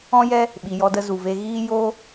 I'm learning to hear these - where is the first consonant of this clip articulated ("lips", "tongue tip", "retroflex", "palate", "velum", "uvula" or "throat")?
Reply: palate